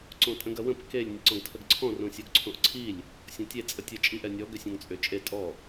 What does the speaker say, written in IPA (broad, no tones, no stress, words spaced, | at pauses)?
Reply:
ǀõtʼə̃ɡɐwə̃p kelʲ nʲəǀɔ̃ɡtʰəɡǀʰɔ̃ rõsʲoɡǀʰõʔǀʰilʲ | sʲɔ̃tʲe t͡sʼətʲə t͡ʃʼiʔ ɛnʲɔ ɡʏsʲõŋt͡sʼʏ t͡ʃʼe tʼɔ